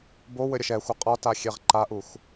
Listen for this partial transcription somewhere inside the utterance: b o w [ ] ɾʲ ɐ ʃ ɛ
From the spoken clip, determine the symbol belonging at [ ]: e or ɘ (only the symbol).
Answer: ɘ